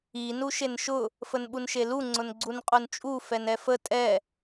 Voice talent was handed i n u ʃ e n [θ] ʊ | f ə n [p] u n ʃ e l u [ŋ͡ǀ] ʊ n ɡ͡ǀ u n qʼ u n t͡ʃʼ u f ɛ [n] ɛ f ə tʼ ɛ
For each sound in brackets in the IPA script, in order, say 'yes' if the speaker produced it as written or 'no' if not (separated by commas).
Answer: no, no, yes, yes